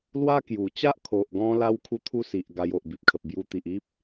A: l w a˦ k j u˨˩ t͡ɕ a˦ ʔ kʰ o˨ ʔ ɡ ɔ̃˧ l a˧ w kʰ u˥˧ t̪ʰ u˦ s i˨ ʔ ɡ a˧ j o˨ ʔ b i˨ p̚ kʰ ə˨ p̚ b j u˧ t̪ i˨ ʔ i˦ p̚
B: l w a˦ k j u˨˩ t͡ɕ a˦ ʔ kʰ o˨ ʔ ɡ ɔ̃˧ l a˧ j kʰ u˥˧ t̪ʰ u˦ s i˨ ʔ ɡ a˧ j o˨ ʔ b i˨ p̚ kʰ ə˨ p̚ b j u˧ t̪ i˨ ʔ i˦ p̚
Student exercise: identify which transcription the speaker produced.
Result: A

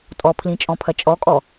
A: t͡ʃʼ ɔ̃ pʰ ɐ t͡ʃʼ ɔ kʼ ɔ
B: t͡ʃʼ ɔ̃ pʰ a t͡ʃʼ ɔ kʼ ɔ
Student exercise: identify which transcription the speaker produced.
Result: A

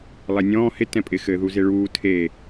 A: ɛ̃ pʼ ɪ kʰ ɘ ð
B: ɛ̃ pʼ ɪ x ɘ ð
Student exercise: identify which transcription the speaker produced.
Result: B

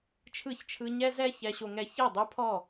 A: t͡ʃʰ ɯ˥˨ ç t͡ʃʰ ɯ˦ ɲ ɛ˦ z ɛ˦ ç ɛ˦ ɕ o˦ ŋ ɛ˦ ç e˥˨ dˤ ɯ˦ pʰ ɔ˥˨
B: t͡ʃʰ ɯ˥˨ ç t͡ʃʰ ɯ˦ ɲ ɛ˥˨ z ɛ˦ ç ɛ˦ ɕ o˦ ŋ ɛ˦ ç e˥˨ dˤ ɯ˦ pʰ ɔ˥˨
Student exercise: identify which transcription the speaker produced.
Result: A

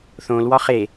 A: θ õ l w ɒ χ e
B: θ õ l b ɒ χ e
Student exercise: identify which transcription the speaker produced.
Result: A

